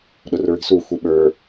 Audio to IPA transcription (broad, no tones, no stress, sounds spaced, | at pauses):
ɗ ʊ r ɹ i̤ s u xʷ i ɓ ə˞